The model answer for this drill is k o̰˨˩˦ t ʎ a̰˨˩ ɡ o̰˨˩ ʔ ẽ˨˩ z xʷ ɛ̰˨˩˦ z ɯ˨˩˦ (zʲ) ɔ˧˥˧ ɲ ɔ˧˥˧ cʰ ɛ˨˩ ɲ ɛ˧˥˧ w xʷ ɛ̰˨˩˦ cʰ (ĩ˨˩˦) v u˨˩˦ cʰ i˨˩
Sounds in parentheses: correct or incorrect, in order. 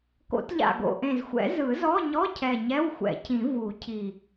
incorrect, correct

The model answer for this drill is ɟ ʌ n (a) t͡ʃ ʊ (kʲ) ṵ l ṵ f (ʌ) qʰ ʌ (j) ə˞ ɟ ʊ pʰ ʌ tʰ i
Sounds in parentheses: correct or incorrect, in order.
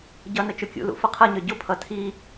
incorrect, correct, correct, incorrect

